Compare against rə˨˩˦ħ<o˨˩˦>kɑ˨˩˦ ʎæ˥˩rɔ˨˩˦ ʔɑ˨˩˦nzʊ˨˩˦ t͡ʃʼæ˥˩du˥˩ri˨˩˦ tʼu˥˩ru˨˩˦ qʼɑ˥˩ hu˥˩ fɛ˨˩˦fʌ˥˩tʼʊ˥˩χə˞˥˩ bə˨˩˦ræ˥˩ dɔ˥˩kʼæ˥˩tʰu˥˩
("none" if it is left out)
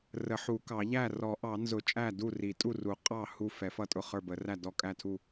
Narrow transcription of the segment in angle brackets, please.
u˨˩˦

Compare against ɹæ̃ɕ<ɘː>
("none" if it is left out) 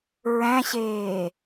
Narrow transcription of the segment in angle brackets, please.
eː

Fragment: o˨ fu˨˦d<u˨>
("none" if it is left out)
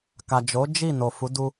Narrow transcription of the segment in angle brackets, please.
u˧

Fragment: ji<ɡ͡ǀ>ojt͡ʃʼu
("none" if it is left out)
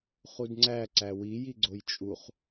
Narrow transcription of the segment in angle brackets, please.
ɡ͡ǀ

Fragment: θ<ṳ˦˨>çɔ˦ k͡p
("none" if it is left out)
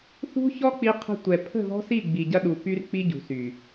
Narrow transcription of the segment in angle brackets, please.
ṳ˦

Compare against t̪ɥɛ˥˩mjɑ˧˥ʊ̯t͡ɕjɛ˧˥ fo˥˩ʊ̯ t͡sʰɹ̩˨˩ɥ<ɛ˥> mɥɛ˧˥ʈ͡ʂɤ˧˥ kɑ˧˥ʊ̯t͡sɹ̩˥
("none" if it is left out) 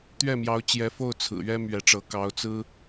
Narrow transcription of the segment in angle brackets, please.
ɛ˥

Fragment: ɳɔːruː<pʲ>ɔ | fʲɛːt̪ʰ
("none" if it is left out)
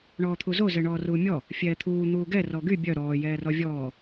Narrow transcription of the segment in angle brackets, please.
mʲ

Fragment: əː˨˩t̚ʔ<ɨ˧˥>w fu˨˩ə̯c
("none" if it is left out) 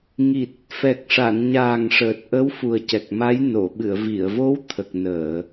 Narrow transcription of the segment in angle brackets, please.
ə˧˥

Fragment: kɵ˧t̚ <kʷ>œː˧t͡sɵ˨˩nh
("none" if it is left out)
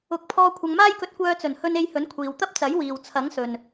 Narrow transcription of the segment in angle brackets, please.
kʷ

